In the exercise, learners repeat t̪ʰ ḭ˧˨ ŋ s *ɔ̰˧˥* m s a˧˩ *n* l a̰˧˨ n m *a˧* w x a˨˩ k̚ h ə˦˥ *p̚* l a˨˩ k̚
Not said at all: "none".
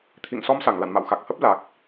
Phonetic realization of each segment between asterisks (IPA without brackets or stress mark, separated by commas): ɔ˧, ŋ, a̰˧˨, p̚